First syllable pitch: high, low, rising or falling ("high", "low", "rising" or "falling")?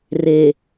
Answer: low